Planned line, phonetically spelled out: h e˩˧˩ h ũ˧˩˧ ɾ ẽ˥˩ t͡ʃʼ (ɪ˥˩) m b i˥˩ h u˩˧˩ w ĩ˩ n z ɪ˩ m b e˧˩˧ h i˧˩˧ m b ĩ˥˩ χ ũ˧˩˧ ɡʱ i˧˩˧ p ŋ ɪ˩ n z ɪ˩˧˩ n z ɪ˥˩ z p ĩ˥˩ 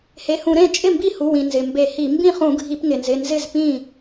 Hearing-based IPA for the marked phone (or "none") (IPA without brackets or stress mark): ɪ˥˩